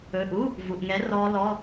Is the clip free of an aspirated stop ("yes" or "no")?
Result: yes